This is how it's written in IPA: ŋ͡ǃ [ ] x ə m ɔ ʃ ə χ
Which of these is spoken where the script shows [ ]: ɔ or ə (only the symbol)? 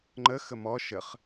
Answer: ə